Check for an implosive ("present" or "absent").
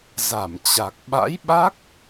present